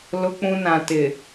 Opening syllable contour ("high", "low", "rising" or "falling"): high